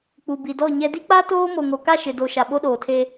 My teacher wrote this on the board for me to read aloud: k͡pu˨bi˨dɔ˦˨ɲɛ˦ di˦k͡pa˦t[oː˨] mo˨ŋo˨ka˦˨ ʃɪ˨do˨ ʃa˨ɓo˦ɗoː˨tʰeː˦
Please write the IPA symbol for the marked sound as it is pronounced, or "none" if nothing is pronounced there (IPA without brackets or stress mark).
oː˦